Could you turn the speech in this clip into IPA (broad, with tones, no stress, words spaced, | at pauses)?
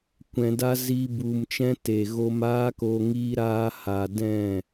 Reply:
kʷɛ̃˧da˦ ziː˦bu˧mt͡ʃɛ̃˦ te˨ɣo˧maː˦ko˧ ŋiː˧ɾaː˧ha˨ dɛ̃˦˨